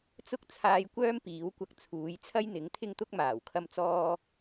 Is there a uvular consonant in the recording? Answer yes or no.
no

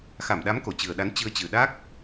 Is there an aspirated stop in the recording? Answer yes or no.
no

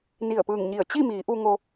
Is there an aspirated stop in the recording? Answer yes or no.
no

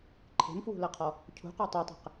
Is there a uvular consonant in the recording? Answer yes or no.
yes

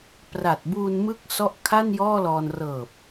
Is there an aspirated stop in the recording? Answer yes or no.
yes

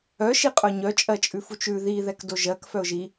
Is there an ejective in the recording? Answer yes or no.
yes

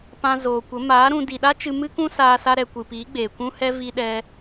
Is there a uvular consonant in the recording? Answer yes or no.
no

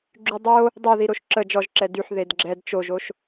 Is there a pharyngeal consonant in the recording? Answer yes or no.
yes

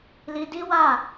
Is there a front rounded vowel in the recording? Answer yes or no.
no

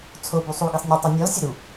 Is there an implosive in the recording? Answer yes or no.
no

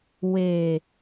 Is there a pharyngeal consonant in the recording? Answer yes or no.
no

